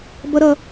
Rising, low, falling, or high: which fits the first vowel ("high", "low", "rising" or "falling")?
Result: high